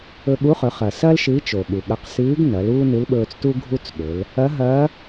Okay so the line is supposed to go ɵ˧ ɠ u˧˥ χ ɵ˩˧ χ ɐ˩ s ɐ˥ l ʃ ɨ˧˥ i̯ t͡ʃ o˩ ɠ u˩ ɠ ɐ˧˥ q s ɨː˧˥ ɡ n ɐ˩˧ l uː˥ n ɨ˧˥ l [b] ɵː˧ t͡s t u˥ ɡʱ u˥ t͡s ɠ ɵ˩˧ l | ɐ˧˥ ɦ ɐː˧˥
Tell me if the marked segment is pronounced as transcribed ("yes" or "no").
no